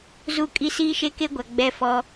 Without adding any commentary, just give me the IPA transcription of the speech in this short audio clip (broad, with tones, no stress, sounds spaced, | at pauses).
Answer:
z u˦˨ kʼ i˦ s iː˦ ʃ e˦ k e˦ ɡʷ a˨ ɡ͡b ɛ˦ f ɔ˦